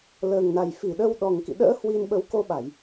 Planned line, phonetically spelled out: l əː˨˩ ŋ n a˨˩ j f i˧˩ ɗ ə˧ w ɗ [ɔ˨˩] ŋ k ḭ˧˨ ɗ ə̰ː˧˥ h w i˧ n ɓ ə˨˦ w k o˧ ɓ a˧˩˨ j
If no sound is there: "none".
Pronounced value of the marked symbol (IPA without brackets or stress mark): ɔ˨˩